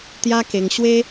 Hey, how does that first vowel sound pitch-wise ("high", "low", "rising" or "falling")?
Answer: high